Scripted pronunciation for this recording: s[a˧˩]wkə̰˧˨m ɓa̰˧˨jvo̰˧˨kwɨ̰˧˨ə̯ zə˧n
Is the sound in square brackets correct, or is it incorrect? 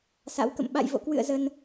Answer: incorrect